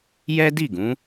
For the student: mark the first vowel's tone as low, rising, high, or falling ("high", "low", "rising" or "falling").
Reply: high